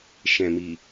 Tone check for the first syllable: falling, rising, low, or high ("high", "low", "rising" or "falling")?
low